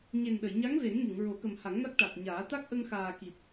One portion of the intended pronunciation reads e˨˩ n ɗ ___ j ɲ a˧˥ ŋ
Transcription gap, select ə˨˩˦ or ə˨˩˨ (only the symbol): ə˨˩˨